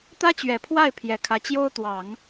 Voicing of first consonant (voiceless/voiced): voiceless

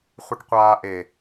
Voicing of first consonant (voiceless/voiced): voiceless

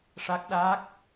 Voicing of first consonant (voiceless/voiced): voiceless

